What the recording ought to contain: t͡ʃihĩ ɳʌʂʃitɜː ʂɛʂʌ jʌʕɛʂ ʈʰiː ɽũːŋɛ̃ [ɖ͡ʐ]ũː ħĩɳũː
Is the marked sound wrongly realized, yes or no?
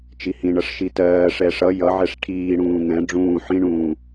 no